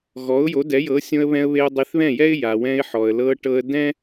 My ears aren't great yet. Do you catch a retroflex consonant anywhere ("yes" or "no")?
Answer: yes